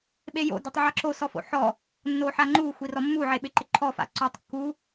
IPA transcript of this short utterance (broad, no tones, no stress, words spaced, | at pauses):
ɓejo̰ dɛtˤʕaǁo sɔfo̰ħɔ | nːoħaŋ͡ǃu xʷirɔmːu ʕeɓɪǃɪǃʰɔ fa̰ǀɔtˤ kːu